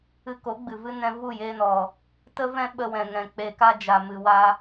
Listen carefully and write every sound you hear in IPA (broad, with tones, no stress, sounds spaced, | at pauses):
ɨ˧ k o˨˦ ɡ͡b ɨ˨ v ɨ˦ n ɛ̃˧ v u˦˨ j e˧ n ɔ˨ | t ə˦ v ɛ̃˦ ɓ ə˧ w ɛ̃˨ ŋ ɛ̃˨ k͡p e˨ k a˧ d͡ʒ a˨ m ɨ˨ w a˧